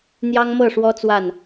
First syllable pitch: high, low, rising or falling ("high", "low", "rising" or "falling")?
high